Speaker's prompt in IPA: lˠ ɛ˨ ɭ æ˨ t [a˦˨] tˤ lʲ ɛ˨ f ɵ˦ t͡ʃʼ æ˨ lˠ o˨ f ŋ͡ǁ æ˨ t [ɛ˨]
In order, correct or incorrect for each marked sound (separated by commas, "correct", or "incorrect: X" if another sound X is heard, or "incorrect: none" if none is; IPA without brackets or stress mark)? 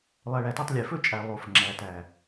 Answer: correct, incorrect: æ˨